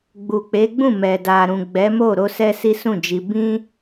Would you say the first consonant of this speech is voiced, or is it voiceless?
voiced